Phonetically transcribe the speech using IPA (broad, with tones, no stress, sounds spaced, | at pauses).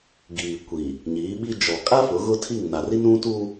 ɡ iː˨ kʷ i˨ | ɲ iː˨˦ ɓ i˦ d͡ʒ ɔ˨ kʼ a˦ f ʊ˨˦ ɣ ʊ˦ tʰ i˦˨ ŋ n a˨ r i˦ n ũ˦ t u˦